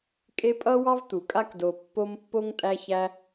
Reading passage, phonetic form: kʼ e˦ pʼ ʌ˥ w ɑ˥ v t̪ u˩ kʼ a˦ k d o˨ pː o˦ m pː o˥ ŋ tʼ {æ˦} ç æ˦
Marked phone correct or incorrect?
correct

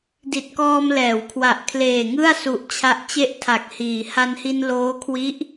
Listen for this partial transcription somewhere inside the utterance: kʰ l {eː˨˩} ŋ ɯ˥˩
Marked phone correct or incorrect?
correct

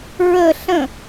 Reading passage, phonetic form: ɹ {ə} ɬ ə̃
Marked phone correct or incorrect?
correct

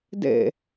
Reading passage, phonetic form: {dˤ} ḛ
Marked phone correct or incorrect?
incorrect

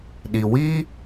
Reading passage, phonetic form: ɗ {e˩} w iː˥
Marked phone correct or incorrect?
incorrect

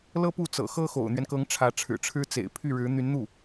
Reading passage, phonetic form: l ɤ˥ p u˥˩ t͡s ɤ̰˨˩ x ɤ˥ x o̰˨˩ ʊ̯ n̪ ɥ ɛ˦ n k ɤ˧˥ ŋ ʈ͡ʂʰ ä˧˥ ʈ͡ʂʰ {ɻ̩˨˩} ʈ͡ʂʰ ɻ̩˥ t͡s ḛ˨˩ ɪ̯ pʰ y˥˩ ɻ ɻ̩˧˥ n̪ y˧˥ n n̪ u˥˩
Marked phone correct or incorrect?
correct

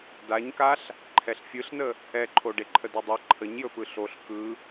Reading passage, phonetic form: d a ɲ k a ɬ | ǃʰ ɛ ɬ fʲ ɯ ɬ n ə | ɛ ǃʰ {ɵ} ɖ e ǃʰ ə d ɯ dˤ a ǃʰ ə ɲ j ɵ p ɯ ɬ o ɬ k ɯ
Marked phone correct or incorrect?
incorrect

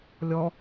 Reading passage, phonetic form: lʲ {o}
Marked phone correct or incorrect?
incorrect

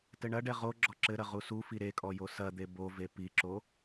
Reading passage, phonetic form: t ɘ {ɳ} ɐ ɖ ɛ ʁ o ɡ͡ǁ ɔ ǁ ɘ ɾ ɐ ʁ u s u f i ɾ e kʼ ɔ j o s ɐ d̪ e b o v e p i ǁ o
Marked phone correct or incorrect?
correct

